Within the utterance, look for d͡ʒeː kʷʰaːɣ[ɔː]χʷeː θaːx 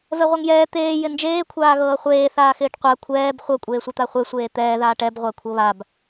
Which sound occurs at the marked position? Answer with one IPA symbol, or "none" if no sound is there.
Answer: ɤː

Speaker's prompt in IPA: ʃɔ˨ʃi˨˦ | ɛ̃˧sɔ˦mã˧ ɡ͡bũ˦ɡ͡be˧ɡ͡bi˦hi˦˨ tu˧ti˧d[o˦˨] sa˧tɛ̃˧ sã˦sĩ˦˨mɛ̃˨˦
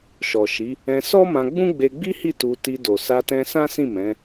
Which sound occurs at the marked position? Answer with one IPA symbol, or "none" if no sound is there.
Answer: o˨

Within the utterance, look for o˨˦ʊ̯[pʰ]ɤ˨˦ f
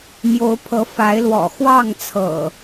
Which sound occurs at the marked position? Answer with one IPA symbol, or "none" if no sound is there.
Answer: pʰ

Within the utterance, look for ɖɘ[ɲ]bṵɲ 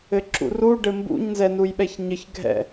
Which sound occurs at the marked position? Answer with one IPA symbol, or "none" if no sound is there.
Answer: m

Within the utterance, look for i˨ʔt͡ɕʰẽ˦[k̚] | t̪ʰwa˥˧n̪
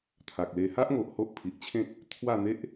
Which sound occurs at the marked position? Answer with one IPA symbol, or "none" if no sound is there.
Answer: k̚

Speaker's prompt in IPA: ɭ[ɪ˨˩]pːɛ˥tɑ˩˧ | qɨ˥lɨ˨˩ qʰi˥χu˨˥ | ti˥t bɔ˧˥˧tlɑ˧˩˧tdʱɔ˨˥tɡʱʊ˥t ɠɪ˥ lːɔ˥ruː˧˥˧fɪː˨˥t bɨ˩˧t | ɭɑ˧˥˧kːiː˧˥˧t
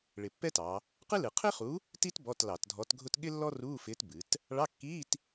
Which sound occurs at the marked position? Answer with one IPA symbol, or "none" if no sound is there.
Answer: ɪ˨˩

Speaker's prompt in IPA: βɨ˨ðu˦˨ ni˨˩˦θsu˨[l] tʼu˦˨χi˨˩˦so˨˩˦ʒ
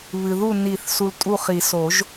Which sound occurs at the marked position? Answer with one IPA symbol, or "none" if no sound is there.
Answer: l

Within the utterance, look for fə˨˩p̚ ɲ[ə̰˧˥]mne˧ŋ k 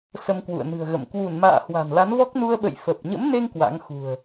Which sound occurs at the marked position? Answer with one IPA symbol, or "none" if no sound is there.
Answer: ə̰˧˥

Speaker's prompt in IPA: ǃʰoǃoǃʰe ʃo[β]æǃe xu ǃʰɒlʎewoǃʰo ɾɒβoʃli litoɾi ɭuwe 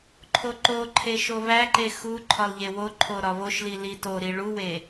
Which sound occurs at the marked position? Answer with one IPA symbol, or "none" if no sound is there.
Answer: β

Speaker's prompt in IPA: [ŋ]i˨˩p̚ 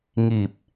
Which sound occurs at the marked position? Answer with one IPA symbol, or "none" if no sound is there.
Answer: ŋ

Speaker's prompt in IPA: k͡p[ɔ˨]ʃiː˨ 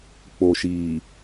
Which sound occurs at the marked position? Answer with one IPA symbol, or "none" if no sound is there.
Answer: o˨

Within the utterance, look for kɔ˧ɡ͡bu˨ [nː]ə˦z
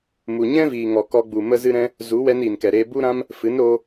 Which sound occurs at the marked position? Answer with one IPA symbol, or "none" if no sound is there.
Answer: m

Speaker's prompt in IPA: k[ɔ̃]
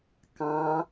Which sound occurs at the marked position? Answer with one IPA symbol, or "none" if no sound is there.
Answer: ɑ̃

